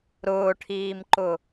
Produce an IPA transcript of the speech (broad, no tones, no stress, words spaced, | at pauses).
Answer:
ɾʊːʈʰiːmǃʊ